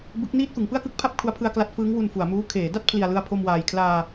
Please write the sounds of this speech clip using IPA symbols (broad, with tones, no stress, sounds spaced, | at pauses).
b ɯ˦˥ k̚ n iː˥˩ t̚ f ɯ˩˦ ŋ p ɯ˥˩ a̯ k ɯ˥˩ k̚ pʰ a˥˩ p̚ kʰ u˦˥ a̯ pʰ ɯ˧ a̯ k l a˦˥ t̚ f ɯː˦˥ ŋ w u˧ n f u˩˦ a̯ m uː˦˥ kʰ eː˩˦ d a˥˩ t̚ pʰ l i˨˩ a̯ l ɯ˧ a̯ pʰ o˧ m w aː˨˩ j kʰ l aː˧